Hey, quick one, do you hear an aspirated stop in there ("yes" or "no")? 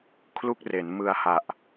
yes